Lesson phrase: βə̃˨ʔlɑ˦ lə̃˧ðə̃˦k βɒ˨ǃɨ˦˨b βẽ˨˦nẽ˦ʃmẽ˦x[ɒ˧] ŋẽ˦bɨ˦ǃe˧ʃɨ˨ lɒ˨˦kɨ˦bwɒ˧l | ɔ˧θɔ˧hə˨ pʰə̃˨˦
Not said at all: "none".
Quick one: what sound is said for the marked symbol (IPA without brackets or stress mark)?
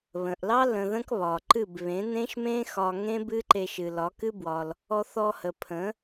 ɒ˧